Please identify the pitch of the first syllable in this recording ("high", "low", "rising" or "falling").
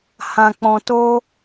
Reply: low